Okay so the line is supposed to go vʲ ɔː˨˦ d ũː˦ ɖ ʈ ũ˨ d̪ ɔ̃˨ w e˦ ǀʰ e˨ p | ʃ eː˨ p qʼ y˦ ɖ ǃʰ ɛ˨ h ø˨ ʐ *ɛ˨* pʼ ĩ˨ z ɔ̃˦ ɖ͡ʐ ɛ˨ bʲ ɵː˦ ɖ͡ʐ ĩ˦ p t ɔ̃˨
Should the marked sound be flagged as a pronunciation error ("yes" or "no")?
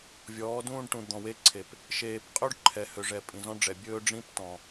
no